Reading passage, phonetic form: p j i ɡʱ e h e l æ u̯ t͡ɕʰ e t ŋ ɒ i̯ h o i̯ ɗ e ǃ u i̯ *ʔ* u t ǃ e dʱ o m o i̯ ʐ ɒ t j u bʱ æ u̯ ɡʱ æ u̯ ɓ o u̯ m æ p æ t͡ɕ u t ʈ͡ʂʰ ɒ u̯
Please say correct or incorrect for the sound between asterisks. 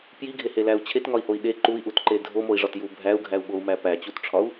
correct